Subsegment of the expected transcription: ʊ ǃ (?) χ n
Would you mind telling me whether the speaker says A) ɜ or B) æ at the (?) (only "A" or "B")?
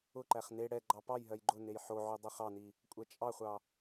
B